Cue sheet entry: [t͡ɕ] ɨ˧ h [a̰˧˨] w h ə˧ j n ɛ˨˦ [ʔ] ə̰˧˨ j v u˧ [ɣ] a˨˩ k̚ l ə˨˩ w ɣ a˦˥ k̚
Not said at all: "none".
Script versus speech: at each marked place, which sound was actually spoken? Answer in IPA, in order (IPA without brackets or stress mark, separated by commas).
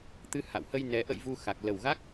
t̪, a̰˧˨, ʔ, x